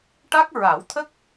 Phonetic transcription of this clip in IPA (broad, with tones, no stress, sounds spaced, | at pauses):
ʈ a˦˥ k̚ ɹ a˨˩˦ w t̪ʰ ə˦˥ k̚